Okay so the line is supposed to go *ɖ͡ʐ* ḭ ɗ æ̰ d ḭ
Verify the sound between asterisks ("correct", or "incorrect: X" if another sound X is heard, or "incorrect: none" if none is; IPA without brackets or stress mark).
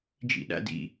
incorrect: d͡ʒ